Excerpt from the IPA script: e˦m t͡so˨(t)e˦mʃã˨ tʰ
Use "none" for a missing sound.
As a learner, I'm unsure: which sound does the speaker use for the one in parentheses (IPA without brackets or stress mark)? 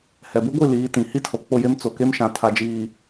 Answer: k